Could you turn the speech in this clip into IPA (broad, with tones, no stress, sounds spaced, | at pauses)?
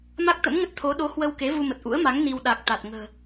m a˦˥ k̚ t̪ ə̰˧˥ m ŋ ə˦˥ t̚ t̪ʰ o˨˦ ɗ o˨˦ h w ə˧ w k e˨˦ v u˧ m ə˨˩ t̚ ʔ ṵ˧˥ ə̯ m a˨˦ ŋ n i˧ w ɗ a˨˩ k̚ t̪ a˨˩ t̚ ŋ ə̤ː˨˩